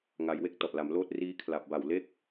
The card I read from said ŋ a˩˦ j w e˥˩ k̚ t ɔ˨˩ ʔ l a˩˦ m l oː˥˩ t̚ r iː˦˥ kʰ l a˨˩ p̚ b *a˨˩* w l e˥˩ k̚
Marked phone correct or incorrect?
correct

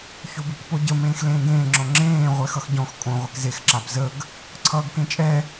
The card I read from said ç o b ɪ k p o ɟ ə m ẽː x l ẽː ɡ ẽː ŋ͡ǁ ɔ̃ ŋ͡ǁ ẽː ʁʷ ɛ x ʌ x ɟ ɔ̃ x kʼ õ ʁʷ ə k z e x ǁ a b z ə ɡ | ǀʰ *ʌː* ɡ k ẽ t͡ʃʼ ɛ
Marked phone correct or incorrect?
correct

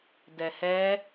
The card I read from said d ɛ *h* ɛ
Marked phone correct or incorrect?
correct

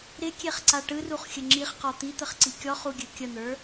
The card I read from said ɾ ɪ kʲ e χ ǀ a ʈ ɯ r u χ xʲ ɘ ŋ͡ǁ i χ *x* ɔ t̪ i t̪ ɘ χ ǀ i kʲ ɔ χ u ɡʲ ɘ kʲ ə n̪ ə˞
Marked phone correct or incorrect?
incorrect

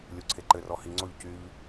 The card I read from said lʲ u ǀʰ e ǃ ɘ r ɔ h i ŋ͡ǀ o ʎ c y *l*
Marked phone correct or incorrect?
incorrect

